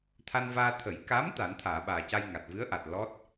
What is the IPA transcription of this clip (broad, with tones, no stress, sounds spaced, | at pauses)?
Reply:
t̪ʰ a˧ n v aː˧ t̪ʰ ə˨˩˦ j k a˧˥ m t̪ a˨˩˦ n t̪ʰ aː˨˩˨ ɓ aː˨˩ c a˧ j ŋ a˨˩ t̚ v ɨ˧˥ ə̯ ʔ a˨˩ t̚ l ɔ˦˥ t̚